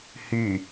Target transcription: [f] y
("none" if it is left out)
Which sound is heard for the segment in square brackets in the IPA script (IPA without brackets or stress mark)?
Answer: h